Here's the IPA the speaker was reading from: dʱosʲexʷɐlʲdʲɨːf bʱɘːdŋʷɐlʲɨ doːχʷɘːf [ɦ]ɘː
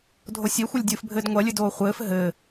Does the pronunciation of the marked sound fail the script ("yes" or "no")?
no